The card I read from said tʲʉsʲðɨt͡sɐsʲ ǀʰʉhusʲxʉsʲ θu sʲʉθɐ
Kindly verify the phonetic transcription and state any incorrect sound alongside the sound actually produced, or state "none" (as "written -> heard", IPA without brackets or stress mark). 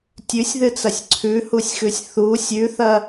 none